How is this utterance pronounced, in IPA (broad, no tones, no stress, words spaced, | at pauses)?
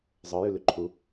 zˤə˞jʉlʉ ǃʰu